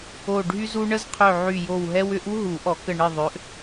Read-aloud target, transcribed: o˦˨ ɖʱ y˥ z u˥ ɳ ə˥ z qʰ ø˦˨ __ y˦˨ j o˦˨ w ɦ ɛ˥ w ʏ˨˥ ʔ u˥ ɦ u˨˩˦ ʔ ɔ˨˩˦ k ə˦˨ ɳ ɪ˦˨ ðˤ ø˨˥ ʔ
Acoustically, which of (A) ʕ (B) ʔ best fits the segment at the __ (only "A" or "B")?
A